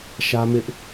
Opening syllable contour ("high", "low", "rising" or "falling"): high